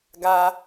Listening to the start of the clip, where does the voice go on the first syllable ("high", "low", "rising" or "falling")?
high